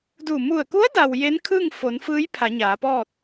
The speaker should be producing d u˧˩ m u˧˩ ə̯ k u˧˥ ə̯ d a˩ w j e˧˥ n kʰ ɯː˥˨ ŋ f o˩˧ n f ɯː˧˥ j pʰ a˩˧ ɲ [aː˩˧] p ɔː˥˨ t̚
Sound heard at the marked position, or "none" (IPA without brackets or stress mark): aː˩˧